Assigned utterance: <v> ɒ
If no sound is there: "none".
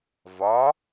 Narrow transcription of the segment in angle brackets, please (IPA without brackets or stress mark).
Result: v